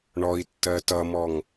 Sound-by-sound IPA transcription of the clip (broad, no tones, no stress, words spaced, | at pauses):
ɳɔi̯tːɜ tʌmɔŋ